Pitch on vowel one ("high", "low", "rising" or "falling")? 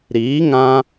rising